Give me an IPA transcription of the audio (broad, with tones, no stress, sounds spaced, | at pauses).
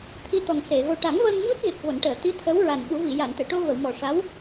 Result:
t̪ʰ i˧ t̪ ɔ˨˩ ŋ s e˨˩˨ ɣ o˨˩ ʈ a˨˩˦ ŋ v əː˧ ŋ ɲ u˦˥ t̚ ɣ e˨˩ k̚ v o˨˩˨ n ʈ əː˨˩˨ t̪ i˧˥ t̪ʰ ə˧˥ w ɹ a˨˩ n ɓ u˨˩˦ v i˨˩˨ j a˨˩˨ n t̪ e˨˩˨ ʈ o˧ v ə˨˩˨ w m ɔ˨˩ ʂ a˧˥ w